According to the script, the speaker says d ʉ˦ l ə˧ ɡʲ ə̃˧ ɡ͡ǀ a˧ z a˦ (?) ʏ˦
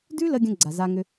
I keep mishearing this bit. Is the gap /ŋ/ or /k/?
ŋ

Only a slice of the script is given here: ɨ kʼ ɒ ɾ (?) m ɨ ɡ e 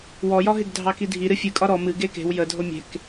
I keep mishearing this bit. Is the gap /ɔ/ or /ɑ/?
ɔ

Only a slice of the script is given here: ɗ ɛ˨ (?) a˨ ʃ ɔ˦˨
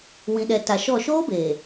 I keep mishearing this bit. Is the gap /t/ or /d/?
t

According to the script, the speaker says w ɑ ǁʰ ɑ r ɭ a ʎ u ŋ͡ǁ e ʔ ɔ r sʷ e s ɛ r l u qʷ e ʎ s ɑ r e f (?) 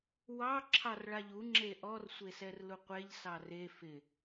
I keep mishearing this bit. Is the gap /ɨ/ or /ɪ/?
ɪ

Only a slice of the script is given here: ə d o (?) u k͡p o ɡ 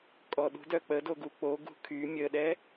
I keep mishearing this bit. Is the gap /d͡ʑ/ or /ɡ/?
ɡ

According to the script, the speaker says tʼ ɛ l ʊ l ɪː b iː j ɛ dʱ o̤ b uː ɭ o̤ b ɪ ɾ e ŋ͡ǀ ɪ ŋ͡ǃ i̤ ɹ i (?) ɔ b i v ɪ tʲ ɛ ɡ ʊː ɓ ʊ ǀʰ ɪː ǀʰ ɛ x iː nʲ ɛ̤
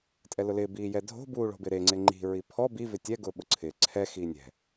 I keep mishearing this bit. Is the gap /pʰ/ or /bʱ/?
pʰ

